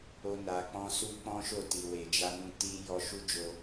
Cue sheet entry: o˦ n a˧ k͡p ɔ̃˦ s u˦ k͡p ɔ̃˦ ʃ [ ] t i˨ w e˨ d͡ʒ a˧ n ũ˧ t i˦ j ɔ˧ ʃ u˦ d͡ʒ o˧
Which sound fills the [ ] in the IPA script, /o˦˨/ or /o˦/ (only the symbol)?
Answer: o˦˨